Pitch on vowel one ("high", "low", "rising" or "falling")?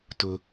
high